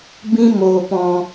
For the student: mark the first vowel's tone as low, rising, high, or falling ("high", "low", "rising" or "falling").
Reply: high